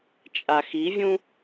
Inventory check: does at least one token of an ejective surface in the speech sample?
yes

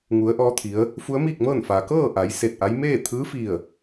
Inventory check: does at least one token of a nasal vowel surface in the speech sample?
no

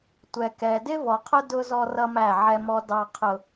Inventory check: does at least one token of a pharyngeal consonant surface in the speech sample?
yes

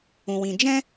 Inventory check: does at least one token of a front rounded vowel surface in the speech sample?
no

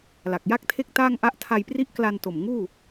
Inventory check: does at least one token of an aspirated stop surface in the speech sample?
yes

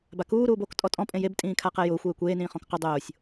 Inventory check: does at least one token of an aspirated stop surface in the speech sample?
yes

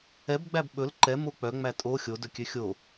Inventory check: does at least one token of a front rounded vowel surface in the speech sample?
yes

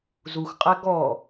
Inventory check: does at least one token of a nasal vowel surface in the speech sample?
no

